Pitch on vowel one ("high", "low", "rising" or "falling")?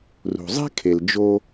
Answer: low